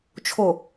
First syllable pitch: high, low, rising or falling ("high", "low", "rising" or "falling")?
low